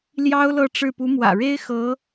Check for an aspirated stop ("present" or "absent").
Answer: absent